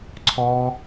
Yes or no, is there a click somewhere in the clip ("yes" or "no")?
yes